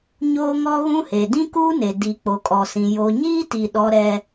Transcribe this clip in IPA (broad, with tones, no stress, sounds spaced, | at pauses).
ɲ oː˦ ŋ ɔ˦ ɣ ũ˦ h e˨ d ĩ˦ k uː˦ n e˨ d i˨ k͡p o˨ kʼ ɔ˨ s ĩ˨ j o˨ ɲ iː˦ t i˨ ɗ ɔ˦ ɾ ɛ˦